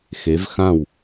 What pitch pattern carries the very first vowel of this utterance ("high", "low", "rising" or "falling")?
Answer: rising